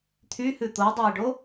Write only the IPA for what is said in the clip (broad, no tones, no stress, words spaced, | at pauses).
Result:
t̪ʰyhʉ t̪odˤæɪ̯ɖo